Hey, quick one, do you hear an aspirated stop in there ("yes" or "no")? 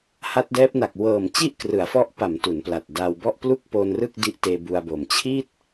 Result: yes